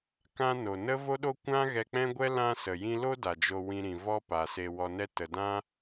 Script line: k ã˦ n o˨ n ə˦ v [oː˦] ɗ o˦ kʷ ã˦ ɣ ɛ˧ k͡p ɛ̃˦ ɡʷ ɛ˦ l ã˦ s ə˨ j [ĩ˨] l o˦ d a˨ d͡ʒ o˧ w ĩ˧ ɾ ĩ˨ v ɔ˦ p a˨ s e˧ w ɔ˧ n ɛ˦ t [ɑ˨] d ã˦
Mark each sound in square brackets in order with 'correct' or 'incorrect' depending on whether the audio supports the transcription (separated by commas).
incorrect, incorrect, incorrect